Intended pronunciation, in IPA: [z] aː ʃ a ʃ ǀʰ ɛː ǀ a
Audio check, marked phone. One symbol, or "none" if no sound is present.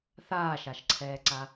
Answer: θ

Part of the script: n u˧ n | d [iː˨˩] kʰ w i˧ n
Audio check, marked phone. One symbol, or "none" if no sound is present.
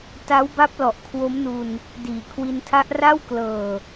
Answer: iː˨˩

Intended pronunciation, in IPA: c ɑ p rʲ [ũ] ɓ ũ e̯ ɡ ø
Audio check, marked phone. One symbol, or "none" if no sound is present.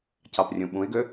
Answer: ũ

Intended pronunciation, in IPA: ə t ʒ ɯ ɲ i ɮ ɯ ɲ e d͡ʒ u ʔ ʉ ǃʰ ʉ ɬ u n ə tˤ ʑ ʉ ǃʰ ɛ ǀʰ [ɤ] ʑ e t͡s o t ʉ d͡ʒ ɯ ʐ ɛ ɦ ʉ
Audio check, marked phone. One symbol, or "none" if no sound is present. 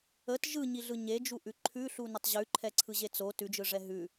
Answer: ɯ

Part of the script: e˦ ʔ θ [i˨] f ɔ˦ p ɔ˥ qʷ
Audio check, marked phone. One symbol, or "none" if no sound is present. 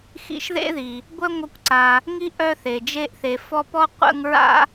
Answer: e˨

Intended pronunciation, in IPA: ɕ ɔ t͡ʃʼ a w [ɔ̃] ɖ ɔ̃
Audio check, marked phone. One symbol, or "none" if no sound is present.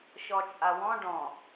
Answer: ɔ̃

